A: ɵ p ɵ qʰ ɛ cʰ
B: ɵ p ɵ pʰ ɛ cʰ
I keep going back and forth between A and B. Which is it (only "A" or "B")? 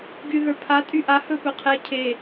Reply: A